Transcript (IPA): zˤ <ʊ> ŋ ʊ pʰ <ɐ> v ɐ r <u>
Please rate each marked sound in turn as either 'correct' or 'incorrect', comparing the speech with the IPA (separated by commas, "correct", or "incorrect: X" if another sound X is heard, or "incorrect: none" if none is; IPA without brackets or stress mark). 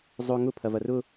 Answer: correct, correct, incorrect: ʊ